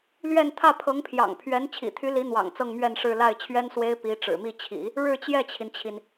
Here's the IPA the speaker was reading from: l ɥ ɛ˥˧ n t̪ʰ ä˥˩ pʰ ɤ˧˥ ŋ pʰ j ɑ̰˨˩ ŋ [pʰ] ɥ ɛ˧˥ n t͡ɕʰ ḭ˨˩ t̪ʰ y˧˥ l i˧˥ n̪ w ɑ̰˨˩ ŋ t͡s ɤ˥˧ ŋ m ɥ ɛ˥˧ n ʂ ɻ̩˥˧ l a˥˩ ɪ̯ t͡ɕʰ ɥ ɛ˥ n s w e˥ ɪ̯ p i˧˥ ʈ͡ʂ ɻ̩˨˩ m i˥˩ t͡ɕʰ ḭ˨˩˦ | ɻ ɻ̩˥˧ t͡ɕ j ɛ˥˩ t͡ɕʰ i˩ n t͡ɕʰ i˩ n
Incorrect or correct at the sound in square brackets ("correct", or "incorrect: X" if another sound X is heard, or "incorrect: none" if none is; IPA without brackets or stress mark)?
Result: correct